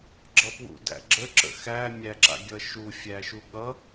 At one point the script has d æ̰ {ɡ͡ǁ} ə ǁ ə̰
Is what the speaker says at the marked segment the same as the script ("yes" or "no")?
yes